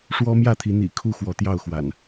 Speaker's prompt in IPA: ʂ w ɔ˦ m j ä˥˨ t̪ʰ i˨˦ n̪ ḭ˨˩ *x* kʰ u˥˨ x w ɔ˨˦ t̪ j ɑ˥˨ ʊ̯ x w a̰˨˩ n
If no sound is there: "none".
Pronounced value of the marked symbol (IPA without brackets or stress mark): none